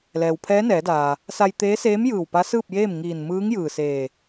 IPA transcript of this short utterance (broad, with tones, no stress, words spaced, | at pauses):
lɛː˩wpʰɛː˧˥nɛː˩˧daː˩ | sa˧j t̪eː˧˥seː˧˥mjɯː˧˩w pa˧˥sɯː˥˨p̚jeː˥˨m ŋiː˧˩n mɯː˧˥ŋ jɯː˧˩seː˧˩